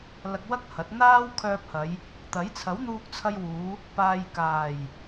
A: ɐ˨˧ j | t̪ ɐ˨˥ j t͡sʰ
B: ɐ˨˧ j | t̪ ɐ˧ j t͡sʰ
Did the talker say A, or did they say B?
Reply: A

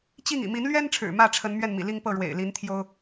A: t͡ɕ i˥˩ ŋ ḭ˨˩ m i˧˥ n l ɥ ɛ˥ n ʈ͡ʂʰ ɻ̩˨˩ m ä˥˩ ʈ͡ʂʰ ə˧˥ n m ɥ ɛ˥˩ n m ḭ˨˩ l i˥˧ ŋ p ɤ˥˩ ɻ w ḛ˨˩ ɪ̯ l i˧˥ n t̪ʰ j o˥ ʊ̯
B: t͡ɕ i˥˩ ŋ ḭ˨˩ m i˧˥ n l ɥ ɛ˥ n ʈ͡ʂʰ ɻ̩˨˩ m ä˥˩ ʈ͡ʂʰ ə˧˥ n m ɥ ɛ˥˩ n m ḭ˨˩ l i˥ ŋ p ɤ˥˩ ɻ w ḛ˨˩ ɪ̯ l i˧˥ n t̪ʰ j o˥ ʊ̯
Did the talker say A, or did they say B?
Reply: A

